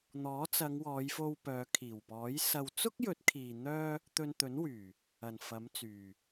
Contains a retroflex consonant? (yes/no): no